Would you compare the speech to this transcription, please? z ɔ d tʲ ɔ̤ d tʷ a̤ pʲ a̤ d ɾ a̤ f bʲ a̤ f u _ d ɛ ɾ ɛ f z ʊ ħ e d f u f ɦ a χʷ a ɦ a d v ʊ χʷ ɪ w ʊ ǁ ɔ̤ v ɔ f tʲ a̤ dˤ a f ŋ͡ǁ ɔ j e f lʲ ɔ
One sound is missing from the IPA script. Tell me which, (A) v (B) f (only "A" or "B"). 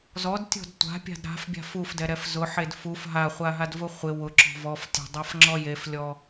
B